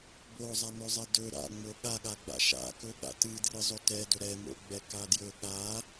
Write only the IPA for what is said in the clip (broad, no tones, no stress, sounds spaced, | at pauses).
b o zˤ a n ɵ zˤ ɛ d ɵ ɾ a̰ ŋ͡m o ɠ a ɠ a ɡ͡b a̰ ʃ a̰ k ɵ ɠ a̰ t ɨ d r ɨ zˤ ɵ t ɛ d ɵ ɾ ɛ m o̰ ɡ͡b ɛ k a d j ɵ ɠ a